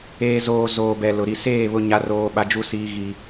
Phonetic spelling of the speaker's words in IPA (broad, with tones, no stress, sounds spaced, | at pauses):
eː˨ z oː˨ z oː˨ b ɛ˨ l ʊ˨ ɾ i˨ s eː˦˨ β ʊ˦ ɲ a˦ r oː˦ ɓ a˦ d͡ʒ u˦ s iː˦ ɣ i˦